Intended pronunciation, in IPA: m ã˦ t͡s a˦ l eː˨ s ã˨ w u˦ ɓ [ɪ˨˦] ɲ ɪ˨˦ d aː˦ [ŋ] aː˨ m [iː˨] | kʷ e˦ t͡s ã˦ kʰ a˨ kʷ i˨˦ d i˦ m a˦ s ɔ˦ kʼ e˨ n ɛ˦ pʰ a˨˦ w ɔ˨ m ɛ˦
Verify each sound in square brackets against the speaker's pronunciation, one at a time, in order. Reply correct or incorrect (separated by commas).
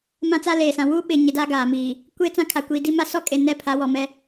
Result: correct, incorrect, correct